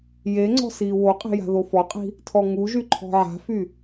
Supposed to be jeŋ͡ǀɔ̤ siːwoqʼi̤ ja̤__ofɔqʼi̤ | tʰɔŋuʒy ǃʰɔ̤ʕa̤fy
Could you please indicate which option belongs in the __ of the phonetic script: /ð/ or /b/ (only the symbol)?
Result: ð